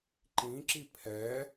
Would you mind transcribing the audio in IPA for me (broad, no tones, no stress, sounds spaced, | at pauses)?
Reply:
ǃ ĩ ǁ i pʰ ɛ